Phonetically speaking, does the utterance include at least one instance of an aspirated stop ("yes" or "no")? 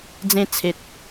yes